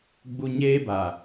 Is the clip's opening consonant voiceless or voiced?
voiced